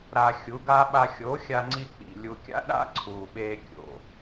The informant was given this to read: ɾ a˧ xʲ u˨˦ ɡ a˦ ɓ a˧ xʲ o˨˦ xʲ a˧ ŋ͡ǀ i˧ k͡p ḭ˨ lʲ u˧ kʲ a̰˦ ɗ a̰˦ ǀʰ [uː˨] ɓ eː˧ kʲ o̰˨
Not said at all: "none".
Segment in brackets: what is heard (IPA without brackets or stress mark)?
uː˨